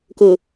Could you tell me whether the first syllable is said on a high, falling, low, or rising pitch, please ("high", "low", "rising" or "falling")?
low